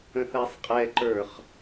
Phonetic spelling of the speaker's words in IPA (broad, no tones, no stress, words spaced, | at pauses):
ə̃θæsˤqʼɛǃə˞χ